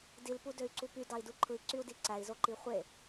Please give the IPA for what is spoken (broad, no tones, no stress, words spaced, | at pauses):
dilpudøy̯ǀu py dɑi̯duǃʰɯi̯ ǀyu̯diǀæi̯zo ǃiχʷe